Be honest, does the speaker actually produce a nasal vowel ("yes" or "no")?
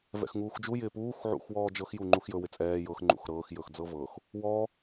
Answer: no